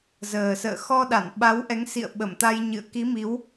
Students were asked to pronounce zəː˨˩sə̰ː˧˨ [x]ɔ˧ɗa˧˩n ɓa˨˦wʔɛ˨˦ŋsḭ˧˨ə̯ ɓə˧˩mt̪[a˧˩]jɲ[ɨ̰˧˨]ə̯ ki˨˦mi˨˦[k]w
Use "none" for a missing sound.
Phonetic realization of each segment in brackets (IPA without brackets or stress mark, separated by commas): x, a˧, ɨ̰˧˨, none